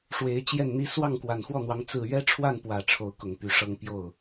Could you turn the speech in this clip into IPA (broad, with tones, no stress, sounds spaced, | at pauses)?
ʂ w e˧˥ ɪ̯ t͡ɕ j ɛ˥˩ n n̪ i˥ s w ɑ˥˩ ŋ k w a˨˩ n x w ɔ˥˩ n̪ w ɑ˧˥ ŋ t͡s ɹ̩˥˩ ɥ ɛ˥ ʈ͡ʂʰ w a˥˩ n p w ä˨˩ ʈ͡ʂʰ o˧˥ ʊ̯ k ʊ˨˩ ŋ p y˧˥ ʂ ɤ˥˧ ŋ p j o˥˩ ʊ̯